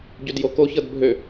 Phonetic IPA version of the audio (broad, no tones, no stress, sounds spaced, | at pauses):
ɟ ø d j o k o ç ɤ d bʱ ø